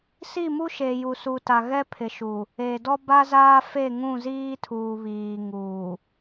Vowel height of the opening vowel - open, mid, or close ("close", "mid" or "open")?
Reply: close